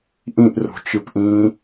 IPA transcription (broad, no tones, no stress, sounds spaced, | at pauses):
ʔ ĩ ʔ r o̤ t͡ʃ ɯ p ʔ ĩ